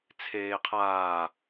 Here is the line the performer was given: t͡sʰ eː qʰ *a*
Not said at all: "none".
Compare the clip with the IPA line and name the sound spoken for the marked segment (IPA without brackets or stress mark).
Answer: aː